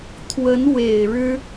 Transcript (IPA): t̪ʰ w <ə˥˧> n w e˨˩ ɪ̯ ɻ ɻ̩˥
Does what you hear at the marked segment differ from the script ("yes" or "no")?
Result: yes